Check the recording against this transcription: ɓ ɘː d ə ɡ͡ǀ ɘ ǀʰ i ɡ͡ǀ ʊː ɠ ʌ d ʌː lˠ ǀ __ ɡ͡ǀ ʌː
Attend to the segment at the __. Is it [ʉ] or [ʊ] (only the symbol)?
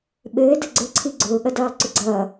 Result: ʊ